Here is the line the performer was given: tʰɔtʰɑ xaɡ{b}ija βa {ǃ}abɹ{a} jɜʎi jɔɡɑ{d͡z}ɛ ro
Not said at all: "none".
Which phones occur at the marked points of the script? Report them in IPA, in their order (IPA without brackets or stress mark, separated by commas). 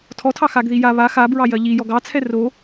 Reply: ð, x, ɑ, t͡sʰ